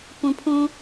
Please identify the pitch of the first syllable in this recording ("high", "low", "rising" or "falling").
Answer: low